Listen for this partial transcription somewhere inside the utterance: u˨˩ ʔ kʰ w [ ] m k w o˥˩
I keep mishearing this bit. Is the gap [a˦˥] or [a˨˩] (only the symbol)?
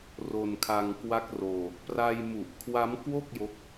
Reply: a˦˥